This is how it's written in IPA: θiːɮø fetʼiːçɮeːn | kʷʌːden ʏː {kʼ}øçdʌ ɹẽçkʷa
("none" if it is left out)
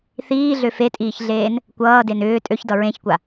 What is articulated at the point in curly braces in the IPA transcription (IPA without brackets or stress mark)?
tʼ